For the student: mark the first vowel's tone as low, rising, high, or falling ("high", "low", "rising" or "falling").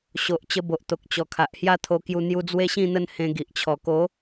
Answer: low